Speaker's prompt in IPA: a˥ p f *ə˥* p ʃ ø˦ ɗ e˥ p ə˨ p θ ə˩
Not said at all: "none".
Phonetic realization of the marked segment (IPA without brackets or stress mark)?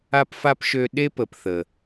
a˥